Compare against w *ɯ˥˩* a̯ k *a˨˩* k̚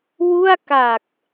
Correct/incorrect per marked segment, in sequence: incorrect: u˥˩, correct

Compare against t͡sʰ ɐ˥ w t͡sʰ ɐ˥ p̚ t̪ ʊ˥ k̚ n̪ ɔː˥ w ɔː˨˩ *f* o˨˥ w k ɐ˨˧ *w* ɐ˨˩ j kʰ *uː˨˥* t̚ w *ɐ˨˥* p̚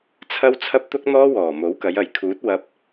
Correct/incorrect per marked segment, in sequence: incorrect: m, incorrect: j, correct, incorrect: ɐ˧

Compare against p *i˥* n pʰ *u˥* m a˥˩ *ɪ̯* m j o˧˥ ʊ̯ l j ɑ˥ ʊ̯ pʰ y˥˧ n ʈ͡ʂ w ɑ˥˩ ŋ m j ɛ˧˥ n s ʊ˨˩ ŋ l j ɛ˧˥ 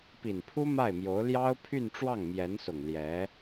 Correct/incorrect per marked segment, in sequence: incorrect: i˨˩, correct, correct

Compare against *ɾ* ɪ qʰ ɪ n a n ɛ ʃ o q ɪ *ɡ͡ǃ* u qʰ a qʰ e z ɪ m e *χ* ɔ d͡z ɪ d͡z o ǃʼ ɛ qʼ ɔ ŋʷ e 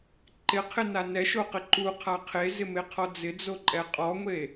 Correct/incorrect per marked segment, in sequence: incorrect: ǃ, incorrect: ǃ, incorrect: qʰ

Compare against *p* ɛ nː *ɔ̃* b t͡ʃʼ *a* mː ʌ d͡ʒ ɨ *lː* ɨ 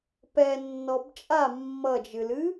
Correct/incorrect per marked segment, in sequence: correct, incorrect: ɔ, correct, incorrect: l

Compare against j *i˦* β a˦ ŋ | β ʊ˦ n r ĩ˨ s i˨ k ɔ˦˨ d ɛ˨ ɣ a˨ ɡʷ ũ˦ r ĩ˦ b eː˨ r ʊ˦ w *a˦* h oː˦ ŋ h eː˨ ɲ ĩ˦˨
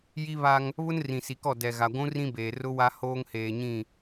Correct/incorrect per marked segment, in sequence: correct, correct

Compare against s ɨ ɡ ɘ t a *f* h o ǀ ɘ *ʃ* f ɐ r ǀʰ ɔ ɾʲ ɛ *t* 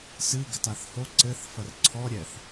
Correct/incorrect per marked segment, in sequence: incorrect: θ, incorrect: θ, incorrect: θ

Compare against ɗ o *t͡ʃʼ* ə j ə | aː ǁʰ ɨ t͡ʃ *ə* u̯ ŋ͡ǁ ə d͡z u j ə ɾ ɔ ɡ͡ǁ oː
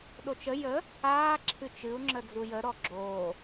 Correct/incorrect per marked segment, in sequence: incorrect: t͡ʃ, incorrect: ɨ

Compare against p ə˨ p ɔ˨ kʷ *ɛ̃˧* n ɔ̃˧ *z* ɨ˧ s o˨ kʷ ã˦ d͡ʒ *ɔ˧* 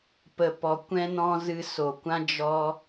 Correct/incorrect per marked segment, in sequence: correct, correct, correct

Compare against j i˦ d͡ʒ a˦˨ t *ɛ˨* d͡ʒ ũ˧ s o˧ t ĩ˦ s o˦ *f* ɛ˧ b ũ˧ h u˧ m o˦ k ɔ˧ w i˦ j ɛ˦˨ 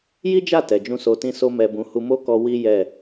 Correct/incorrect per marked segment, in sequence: correct, incorrect: m

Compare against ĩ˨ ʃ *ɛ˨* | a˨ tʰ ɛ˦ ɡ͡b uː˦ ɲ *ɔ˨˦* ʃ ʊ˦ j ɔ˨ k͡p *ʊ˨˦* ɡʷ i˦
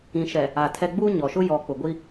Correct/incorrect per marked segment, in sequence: correct, incorrect: ɔ˨, incorrect: ʊ˨

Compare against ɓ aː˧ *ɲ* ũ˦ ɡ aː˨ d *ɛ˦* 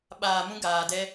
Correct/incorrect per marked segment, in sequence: incorrect: m, correct

